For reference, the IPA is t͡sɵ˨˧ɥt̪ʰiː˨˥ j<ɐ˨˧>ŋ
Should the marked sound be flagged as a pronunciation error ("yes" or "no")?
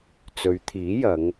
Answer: no